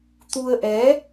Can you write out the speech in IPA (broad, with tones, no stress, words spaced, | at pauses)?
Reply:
t̪u˧ə̯ʔɛ˨˦